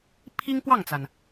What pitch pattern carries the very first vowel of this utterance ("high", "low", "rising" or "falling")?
high